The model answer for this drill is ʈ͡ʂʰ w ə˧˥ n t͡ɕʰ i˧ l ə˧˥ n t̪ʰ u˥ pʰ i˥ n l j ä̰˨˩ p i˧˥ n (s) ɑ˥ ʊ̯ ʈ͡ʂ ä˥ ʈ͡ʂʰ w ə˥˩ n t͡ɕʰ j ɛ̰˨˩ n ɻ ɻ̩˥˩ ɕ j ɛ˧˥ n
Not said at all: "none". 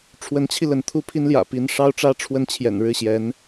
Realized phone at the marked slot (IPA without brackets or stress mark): ʂ